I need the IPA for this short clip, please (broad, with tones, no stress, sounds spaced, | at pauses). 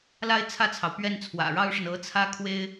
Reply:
l a˥ ɪ̯ t͡sʰ ä˥˩ t͡sʰ ɑ˩ ʊ̯ p ɥ ɛ˥˩ n t͡sʰ w ä̰˨˩ ɻ ɑ˥ ʊ̯ ʂ ə˨ n ɤ˧˥ t͡sʰ ä˥ kʰ w e˥ ɪ̯